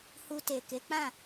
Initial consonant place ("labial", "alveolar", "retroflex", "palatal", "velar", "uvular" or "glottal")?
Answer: glottal